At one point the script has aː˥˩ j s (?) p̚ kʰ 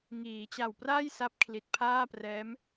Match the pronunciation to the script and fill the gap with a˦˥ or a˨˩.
a˦˥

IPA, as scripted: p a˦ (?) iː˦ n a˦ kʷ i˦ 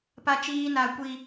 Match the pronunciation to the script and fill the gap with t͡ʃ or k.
t͡ʃ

